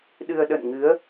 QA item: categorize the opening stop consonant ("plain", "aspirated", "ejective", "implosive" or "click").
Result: implosive